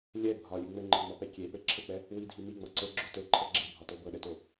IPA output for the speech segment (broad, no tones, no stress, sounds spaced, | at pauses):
lʲ ɛ bʱ ɒ lʲ ɨ ŋ͡m ɘ ŋ͡ǃ ɤ ŋ͡m ɒ p ɛ kʲ e p ɘ ǁʰ ɘ k͡p ɛ | w i dʱ i m i ŋ͡m ɤ ǀ ɘ ɡ͡ǁ o t ɘ ǃʰ ɤ ɡ͡ǁ e bʱ ɒ t ɤ b ɤ ɗ ɛ t o